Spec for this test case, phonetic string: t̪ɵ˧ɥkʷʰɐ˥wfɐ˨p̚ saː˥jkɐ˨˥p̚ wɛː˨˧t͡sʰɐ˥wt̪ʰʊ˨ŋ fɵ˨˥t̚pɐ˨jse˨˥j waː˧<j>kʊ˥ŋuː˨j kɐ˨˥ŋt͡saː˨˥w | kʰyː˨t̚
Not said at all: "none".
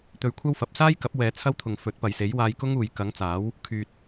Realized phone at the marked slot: j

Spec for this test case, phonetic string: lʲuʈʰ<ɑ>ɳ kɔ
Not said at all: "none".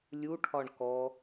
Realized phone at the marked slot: ɒ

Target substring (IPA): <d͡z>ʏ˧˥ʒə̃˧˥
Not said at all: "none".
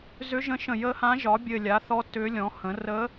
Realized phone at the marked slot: z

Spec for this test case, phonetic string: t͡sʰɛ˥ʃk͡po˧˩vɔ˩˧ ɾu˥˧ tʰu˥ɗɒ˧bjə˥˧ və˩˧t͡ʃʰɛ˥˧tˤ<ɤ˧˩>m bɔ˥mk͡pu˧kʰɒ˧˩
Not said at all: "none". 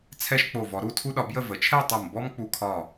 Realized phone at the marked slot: o˧˩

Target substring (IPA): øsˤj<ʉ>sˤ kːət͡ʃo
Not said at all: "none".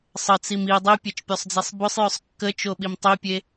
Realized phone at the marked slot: ø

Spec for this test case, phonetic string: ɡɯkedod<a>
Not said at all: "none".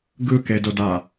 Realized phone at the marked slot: a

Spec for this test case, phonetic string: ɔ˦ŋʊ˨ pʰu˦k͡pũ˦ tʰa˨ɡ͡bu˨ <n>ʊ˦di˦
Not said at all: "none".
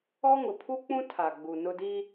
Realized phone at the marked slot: n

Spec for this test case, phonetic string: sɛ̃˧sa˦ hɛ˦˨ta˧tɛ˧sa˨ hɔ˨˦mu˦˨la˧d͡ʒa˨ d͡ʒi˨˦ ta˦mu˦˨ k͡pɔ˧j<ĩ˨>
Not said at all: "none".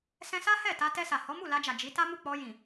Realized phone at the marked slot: ĩ˨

